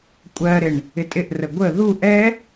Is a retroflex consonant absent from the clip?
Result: no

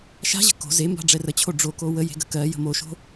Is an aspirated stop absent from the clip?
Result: no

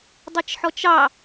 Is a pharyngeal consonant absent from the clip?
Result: no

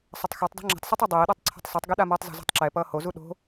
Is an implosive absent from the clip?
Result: no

